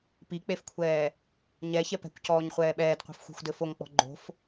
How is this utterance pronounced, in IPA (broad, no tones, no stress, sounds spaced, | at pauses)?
p i k͡p e f kʷʰ ɛː | ɲ ɛ ç ɛ p ɛ̤ kʷ c ɔː ɲ χʷ ɛː ɓ ɛː d qʷ ɛ̤ f xʷ e̤ xʷ d ɘ f o ŋ k͡p ɔ̤ ɡ͡ǃ o̤ f